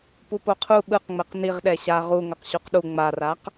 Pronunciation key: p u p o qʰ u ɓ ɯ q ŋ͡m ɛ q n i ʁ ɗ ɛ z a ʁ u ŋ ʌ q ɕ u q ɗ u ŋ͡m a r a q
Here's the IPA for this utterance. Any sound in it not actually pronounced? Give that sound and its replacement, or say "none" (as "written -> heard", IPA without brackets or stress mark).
z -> ɕ